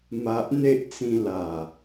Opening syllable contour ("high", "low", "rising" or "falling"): low